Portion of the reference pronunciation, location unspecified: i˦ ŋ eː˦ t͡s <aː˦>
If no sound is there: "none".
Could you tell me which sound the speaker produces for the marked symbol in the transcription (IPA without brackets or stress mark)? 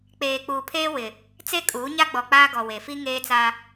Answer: aː˦